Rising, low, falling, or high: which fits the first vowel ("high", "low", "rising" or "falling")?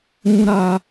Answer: low